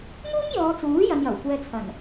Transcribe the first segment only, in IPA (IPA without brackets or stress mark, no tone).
ŋ